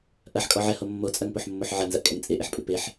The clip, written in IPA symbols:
ʔ ɐ ħ kʼ ɔ ʕ ɛ h o mː o t͡sʼ ɐ ŋ p o ħ mː o ħ ʕ ɐ n z ɐ ʔ kʼ ɛ ŋ t͡sʼ e ʔ e ħ pʼ ɨ p e ħ

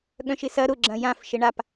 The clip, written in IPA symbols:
ɠ œ̃ ʃ ɪ s ɐ ɾ ʊ ɡ͡ǁ ɐ̃ j ã f ʃ ɪ ɳ a p

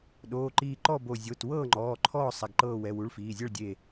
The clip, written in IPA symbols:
ɗ oː˩˧˩ ǃ iː˧˩ ǃ ɔ˥˩ b o˧˩ zʲ o˩˧˩ t w ɤː˥˩ ŋ͡ǃ ɔː˩˧˩ ǃʰ ɔː˥˩ sˤ a˩˧˩ ɡ ǃ ɤː˧˩ w ɛ˩˧˩ w u˩˧˩ ɭ f iː˩˧˩ zʲ ɤ˥˩ ɭ dʲ e˧˩

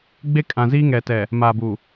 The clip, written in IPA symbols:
ɡ͡b e˦ kʼ ã˨ z iː˦ ŋ ɛ˨ t ɛ˨ | m aː˨ b u˨

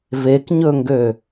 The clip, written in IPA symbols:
v e k ɲ ɵ ŋ ɡ ø

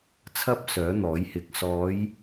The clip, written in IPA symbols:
t͡sʰ ɐ˥ p̚ s œː˨˥ n̪ ɔː˨˥ j h ɪ˨˥ k̚ s ɔː˨˧ j

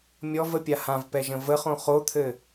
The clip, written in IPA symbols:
mʲ ɔ v ə pʲ a h ã v p ɛ ʒ ə̃ v ə χ õ χ o t̪ʰ ɘ

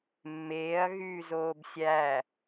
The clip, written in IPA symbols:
mː eː ɐ̯ ɣ yː z oː b sʲ æ

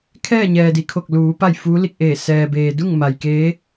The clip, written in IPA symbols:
kʰ ɛː˥˨ ɲ ɛː˩ d i˩ kʰ o˧˩ k̚ l uː˩˧ p a˥˨ j f uː˧˥ l i˧ k̚ ʔ eː˧˩ s ɛː˩ b eː˩ d u˥˨ ŋ m a˩ j k eː˧˥

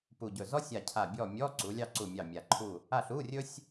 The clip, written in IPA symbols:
p u˨˩ ɟ ɵ˨˩ z ɔ˥ sʲ a˦˨ cʰ a˦˨ bʲ ɔ˦˨ mʲ ɔ˧˥˧ ǀ u˨˥ lʲ ɑ˥ ǀ u˦˨ mʲ ɑ˦˨ mʲ a˨˩ ǃʰ u˦˨ | a˦˨ ɬ u˧˥˧ rʲ ɵ˥ sʲ

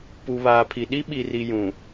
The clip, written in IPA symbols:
p u˨ β aː˨ pʰ i˨ ɗ i˦ ɓ i˨ r i˨ j ũ˨

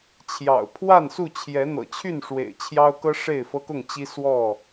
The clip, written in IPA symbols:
t͡ɕʰ j ɑ̰˨˩ ʊ̯ pʰ w a˥˨ n s u˥˨ t͡ɕʰ j ɛ˨˦ n̪ ɤ̰˨˩ t͡ɕʰ y˥˨ n ʂ w ḛ˨˩ ɪ̯ t͡ɕʰ j ɑ˦ ʊ̯ k ɤ˦ ʂ e˥˨ ɪ̯ f ɤ˦ k ʊ˥˨ ŋ t͡ɕ i˦ s w ɔ˥˨

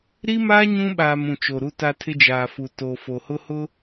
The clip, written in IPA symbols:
ɾ i˦ m aː˦ ɲ ũ˦ ɓ aː˨ m ũ˨ t͡ʃ o˨ ɾ u˦ t a˦ tʰ ɪ˦ d͡ʒ aː˨ f u˨ t o˨ f o˨ h ʊ˦ h ʊ˦

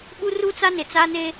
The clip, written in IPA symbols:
ɓ u˦ r u˦ t͡s a˦ n ɪ˨ t͡s a˦ n e˦

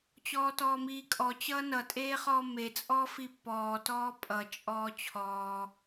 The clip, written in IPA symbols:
t͡ɕ ɔː t ɔː m iː kʼ ɔ t͡ɕ ʌː n ʌ tʼ eː χ ɔː m e t͡sʼ ɔː f i pː ɔː t ɔː pʼ ʌ t͡ʃʼ ɔː t͡ɕʰ ɔː

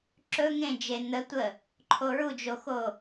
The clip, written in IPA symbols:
ǁ ɵ ŋ ẽ d͡ʒ e n̪ ə tʷ ə | ǃʰ o ɹ u d͡ʒ o x o

